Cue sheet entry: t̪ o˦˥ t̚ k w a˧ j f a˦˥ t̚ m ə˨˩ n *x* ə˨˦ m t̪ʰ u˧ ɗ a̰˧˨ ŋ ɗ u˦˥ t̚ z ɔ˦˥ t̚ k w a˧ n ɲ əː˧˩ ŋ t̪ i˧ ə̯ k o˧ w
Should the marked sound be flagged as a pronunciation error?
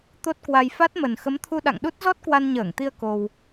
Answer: no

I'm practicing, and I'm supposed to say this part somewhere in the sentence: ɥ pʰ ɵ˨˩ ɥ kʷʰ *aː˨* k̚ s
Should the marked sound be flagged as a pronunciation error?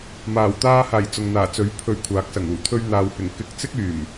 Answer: yes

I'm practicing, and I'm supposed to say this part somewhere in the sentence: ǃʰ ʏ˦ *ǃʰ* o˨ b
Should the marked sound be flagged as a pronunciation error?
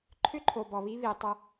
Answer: no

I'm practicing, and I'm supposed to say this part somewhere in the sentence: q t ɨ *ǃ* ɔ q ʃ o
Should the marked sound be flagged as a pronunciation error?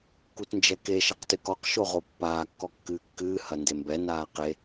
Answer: yes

